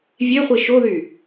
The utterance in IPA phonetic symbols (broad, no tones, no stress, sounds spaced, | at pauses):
vʲ e χʷ i ʃ o ð y